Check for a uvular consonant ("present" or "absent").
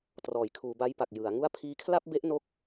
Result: absent